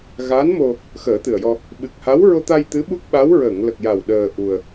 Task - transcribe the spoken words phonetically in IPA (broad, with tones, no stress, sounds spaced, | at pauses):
ɣ a˧˥ n m o˧ | x əː˨˩˦ t̪ ɨ˨˩ ə̯ j ɔ˧ | ɓ ɨ˨˩ k̚ h a˧˥ w ɹ o˧ t̪ a˧ j t̪ ɨ˧˥ ɓ u˦˥ k̚ ɓ a˧˥ w ɹ ə˨˩˨ ŋ l ə˨˩ k̚ j a˨˩ w ɗ əː˧ ʔ u˧ ə̯